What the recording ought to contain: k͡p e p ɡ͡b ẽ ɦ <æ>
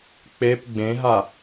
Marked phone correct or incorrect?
incorrect